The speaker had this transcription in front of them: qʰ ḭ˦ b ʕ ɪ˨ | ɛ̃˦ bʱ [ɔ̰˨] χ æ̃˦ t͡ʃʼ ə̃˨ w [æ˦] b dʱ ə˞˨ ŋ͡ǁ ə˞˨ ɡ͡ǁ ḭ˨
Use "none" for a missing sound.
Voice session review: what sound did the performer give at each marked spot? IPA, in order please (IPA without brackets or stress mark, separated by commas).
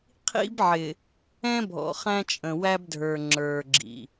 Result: ɔ̰˨, æ˦